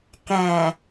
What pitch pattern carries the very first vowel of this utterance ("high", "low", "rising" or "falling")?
low